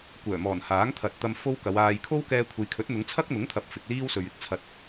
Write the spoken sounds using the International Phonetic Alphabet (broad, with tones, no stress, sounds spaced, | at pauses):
kʷ œː˨˩ m ɔː˨˩ n h aː˨˥ ŋ t̪ʰ ɐ˨ t̚ t̪ ɐ˧ m f o˥ w k ɐ˨˧ w aː˧ j kʰ o˥ w k ɛː˧ kʷʰ e˨ j kʰ ɵ˨˥ t̚ n̪ ʊ˨˧ ŋ t͡sʰ ɐ˥ k̚ n̪ ʊ˨˥ ŋ t̪ʰ ɐ˨ p̚ f ɪ˨ k̚ l iː˥ w s ɵ˨ ɥ ɪ˧ k̚ t͡sʰ ɐ˧ t̚